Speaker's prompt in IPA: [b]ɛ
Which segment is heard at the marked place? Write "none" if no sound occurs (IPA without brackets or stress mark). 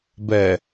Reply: b